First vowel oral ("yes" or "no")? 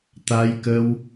yes